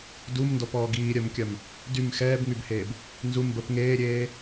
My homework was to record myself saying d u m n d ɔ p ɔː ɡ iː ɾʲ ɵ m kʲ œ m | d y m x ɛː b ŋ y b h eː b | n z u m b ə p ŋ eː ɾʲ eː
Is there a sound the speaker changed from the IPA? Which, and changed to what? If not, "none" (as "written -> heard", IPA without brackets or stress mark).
ɵ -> œ